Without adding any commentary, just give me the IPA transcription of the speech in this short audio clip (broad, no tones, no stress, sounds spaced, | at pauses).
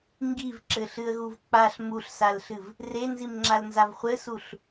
ŋ ɡ i v ǁ ɘ ɬ ɨ ə̯ ɣ u v k͡p a ɬ m u ɬ s a l ɬ ɨ v | r e n z i m ŋ͡ǁ a l n z a v χʷ ɘ s u ɬ